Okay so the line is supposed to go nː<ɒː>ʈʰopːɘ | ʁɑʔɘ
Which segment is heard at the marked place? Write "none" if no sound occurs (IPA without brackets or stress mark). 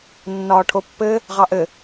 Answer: ɒː